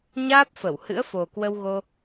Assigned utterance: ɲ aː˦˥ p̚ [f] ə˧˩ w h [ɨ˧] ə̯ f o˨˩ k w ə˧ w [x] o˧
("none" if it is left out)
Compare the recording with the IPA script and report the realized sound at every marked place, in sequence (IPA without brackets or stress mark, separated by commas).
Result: f, ɨ̰˧˥, ɣ